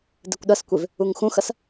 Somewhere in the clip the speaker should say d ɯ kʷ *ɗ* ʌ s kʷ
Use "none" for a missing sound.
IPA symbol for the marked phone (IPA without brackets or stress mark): ɗ